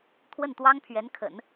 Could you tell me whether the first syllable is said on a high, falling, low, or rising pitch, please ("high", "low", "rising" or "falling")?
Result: falling